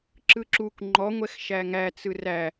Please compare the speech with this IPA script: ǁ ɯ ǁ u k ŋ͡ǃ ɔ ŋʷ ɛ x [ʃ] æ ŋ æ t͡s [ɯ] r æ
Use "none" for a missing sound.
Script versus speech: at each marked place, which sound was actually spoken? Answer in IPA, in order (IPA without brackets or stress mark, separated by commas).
ʃ, ɯ